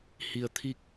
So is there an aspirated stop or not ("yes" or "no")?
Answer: yes